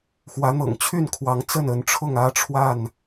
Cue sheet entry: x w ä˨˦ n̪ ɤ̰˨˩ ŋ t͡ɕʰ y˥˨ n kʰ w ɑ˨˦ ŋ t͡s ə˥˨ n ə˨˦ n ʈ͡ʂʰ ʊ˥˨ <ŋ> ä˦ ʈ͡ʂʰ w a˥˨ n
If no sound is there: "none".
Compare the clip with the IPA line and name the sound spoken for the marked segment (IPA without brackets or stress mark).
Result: ŋ